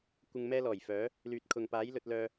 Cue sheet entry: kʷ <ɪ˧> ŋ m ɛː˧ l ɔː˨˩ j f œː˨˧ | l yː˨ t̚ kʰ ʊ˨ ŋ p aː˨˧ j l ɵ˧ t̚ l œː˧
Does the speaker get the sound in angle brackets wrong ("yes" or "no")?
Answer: no